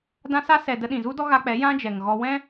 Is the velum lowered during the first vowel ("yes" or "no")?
yes